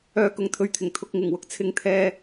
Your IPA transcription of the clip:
œː˧ k ʊ˨ ŋ t̪ʰ ɵ˨ ɥ t̪ʰ ɪ˨˩ ŋ t̪ʰ ʊ˧ k̚ ŋ ɪ˨˩ ŋ w ʊ˨ k̚ t͡sʰ ɪ˧ ŋ t̪ʰ ɛː˧

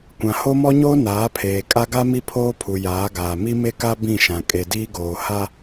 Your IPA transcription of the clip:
kʷ ã˨ h o˦ m ɔ˦ ɲ oː˦ n aː˨˦ pʰ eː˨ kʼ a˦ ɡ a˦ m i˦ pʰ oː˦ pʰ u˨ j aː˨˦ ɡ aː˨ m i˦ m e˦ k a˦ b ĩ˦˨ ʃ ã˨ kʼ e˨ d iː˦ ɡ oː˨ h a˦

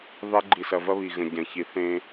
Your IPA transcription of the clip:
ðˤ e˦ ɡ͡ǃ i˨ s ɐ˨ v ɐ˦ β i˨ ɣ ə̃˨ ɟ ɐ̃˨ ç i˨ θ ẽ˦

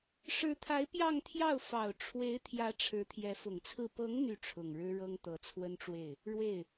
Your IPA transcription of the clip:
ʂ ɻ̩˧˥ t̪ʰ a˧˥ ɪ̯ p j ɑ˥˧ ŋ t̪ʰ j ɑ˥˩ ʊ̯ f ɑ˨˩ ʊ̯ ʈ͡ʂʰ w e˧˥ ɪ̯ t̪ʰ j ä˧˥ ʈ͡ʂʰ ɻ̩˧˥ t̪ʰ j ɛ˧˥ f ʊ˨˩ ŋ t͡sʰ ɹ̩˥˩ p ɤ˧˥ ŋ n̪ y˥˩ ʈ͡ʂʰ ʊ˨˩ ŋ ɻ ɻ̩˥ ɻ ɤ˥ ŋ t̪ ɤ˧˥ t͡sʰ w ə˥ n ʈ͡ʂ w e˥˩ ɪ̯ | ɻ w e˥˩ ɪ̯

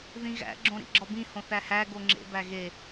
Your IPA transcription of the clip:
ð ĩ ɣ æ̰ ɡ͡ǁ õ ɾ ḭ ɡ͡ǁ ɒ b ĩ h õ θ æ h æ ɡ o ŋ͡ǁ ḛ b æ ɣ e

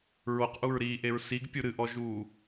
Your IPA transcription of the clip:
ɹ o q ʔ u ɹ ɾ iː ʔ e ɹ s i ɡ pʲ u ɾ ɨ ʔ ɔ ʒ uː

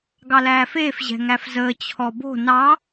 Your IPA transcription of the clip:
ɡ ɑ l æː f eː f ʑ ɛ̤ ŋ æ f z əː t͡ɕʰ ɔ b o̤ n ɑ

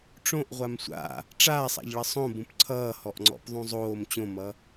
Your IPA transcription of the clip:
ʈ͡ʂ õ ʔ ʁʷ a m sʷ a̰ | ʈ͡ʂ aː sˤ a̰ ʎ ɭ ʌ sˤ õ b ũ p ǀʰ ʌː h ɔ ʔ ŋ͡ǀ ɔ̰ p ðˤ ũ zˤ oː m t͡ɕ õ m ʌ

